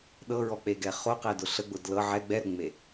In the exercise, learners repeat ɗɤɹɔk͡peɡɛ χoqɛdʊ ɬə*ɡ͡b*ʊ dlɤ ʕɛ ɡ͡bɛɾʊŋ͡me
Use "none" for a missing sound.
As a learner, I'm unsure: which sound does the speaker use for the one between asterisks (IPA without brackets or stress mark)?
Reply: ɡ͡b